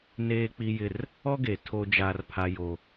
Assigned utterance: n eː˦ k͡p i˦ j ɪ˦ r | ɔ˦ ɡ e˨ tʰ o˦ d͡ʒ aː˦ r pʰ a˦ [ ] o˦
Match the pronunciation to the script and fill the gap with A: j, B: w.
A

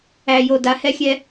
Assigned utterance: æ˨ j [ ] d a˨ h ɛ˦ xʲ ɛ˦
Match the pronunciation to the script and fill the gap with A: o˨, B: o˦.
A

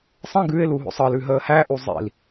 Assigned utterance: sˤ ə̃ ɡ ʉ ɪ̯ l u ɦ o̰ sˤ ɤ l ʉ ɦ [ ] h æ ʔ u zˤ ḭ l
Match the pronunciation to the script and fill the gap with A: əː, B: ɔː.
A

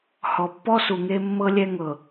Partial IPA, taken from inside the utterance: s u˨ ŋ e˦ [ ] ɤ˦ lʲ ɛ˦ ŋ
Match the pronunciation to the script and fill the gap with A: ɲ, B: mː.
B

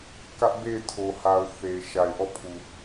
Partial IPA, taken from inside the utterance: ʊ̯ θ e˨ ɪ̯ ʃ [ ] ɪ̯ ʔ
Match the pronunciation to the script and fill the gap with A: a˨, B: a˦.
A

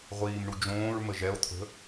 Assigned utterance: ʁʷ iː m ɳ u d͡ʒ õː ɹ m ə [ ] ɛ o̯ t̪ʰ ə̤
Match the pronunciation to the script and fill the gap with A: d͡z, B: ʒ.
B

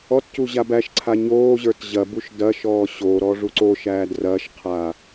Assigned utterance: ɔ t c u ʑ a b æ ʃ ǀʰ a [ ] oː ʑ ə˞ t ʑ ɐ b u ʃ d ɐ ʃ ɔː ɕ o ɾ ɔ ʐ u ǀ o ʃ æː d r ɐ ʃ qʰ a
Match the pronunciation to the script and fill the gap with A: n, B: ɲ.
B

